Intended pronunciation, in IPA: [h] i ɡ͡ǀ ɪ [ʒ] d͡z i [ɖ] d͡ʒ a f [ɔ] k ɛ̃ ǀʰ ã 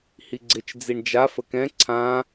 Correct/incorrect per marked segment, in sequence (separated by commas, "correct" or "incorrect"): correct, incorrect, incorrect, incorrect